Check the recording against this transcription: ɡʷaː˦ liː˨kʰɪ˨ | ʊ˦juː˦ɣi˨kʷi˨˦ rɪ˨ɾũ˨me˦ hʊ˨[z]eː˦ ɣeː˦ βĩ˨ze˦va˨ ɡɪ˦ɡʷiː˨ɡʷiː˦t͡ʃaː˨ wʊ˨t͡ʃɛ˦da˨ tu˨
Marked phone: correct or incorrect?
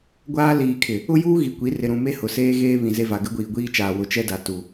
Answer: incorrect